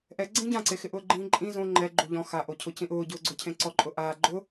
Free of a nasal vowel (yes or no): no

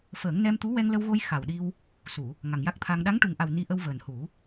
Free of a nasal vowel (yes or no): yes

